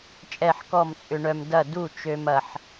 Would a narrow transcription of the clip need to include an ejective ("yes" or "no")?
yes